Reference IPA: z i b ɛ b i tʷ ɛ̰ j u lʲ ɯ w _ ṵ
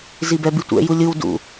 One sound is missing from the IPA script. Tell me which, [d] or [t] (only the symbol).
d